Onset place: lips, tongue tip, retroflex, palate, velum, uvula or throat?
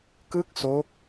velum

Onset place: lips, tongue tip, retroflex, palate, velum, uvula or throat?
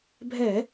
lips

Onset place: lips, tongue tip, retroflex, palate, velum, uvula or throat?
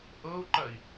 throat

